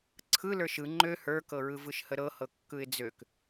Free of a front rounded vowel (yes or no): no